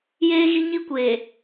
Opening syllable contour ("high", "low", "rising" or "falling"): high